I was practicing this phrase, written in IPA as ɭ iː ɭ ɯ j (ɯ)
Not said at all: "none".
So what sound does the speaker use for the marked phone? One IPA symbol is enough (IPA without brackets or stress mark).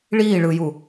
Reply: u